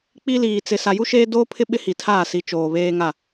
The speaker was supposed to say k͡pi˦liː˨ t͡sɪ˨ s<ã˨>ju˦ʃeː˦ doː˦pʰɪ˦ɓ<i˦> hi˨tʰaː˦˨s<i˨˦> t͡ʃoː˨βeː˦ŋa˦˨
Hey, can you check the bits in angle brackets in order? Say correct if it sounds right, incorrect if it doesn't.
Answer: incorrect: a˨, incorrect: ɪ˦, correct

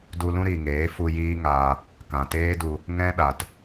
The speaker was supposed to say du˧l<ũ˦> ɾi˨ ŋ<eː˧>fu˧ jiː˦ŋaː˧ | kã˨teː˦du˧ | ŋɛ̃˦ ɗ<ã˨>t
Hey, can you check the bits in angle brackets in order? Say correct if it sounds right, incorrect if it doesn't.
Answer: correct, incorrect: eː˨˦, incorrect: a˨

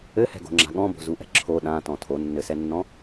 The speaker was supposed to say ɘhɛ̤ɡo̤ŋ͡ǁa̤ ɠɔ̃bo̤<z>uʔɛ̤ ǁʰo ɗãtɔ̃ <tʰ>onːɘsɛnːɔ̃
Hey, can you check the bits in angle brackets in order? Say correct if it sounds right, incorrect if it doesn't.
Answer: correct, correct

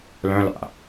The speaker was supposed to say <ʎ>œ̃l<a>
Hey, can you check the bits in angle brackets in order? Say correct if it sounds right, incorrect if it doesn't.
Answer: incorrect: l, incorrect: a̰

